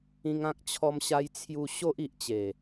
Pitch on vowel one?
high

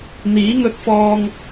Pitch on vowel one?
rising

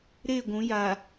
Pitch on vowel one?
falling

